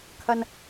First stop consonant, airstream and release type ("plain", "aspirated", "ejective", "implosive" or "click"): aspirated